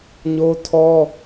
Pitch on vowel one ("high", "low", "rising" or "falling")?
high